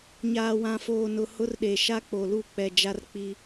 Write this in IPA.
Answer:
ɲaː˨wã˨foː˨ nʊ˨ hʊ˦rɗe˨ ʃa˦k͡po˨lu˦˨ k͡pɛ˨ d͡ʒa˦rk͡pi˦

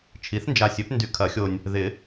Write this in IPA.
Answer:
t͡ʃʰi˩˥θnd͡ʒa˨ sʲø˩˥pndy˨ kʰɐ˨˩˦xʲo˨nʲ | ðɪ˨˩˦

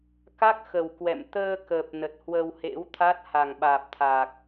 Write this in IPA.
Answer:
ka˦˥k̚xə˨˩wkwɛ̰˧˨m t̪əː˧ kəː˨˩p̚nə˨˩t̚ hwə˧whḛ˧˥wt̪ʰa˦˥t̚ ha˨˩ŋɓaː˨˩p̚t̪ʰaː˨˩k̚

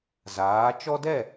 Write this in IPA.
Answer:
zaː˩˥ t͡ʃɔ˦dɛ˥˩

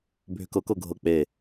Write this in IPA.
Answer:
bʱʏkɤkɤ ɡʱɤk͡pe

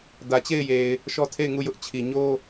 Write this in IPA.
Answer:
dä˨ t͡ɕe˦˨ɪ̯je˨ɪ̯ | ʃɔ˦tʰe˦˨ɪ̯ŋu˦˨jʊ˦ʔ t͡ɕʰi˨ɲo˦

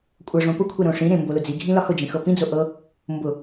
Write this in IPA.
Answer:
kʷʼɤʐõ pʊkʷʰɛ ɾõʂĩɾẽ mbolʊd͡ziɡʱĩ lɒhʊd͡ʒĩ xɤpĩd͡zo ʔɤ | mbʊ

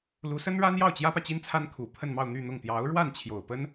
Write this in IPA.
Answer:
lu˧˥sə˥nɻa˥n jɑ˥˩ʊ̯t͡ɕjä˥pä˨t͡ɕi˥n t͡sʰa˥nkʰu˨˩pʰə˥˧nmɑ˥˧ʊ̯ n̪y˥˧n̪ʊ˥˩ŋ t̪jɑ˧˥ʊ̯ ɻwa˥˩nt͡ɕʰjo˨˩ʊ̯pə˥n

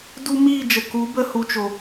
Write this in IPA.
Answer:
du˧ miː˦˨d͡ʒə˨ku˨˦ bə˧hu˨t͡ʃo˨

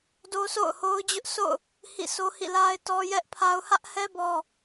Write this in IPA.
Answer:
do˦sʰo̰˦˨ʊ̯ho˦ʊ̯ d͡ʑʊ˦ʔsʰo̰˦˨ʊ̯ | hḭ˦˨ so˦hḭ˦˨la˦ɪ̯ tɔ˦jɛ˦ʔpʰa˦ʊ̯ hä˦ʔhɛ˦ bɔ˦

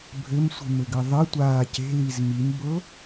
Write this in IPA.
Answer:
bʱɘmsʷi̤mɘɡɘ ðˤɘtʷaː ce̤liz mimbɤ

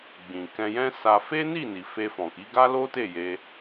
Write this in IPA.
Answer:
ɡ͡bĩ˨ kɛ̃˧jɛ̃˦sa˧ fe˦ni˦˨ni˨ fe˧fɔ̃˨ki˨˦ɡa˦ lo˦te˦˨je˧

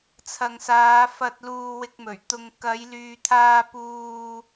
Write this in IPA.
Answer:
t͡sʰɐ˨ŋsaː˨˧fɐ˧t̚ luː˧wɪ˧k̚mɵ˨˩ɥt̪ʊ˧ŋ kɐ˨˧jlyː˨t̪ʰaː˧ puː˧

